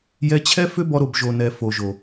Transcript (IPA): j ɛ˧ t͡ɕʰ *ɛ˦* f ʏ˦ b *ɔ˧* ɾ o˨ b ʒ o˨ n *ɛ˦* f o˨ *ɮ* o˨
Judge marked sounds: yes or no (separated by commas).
yes, yes, no, no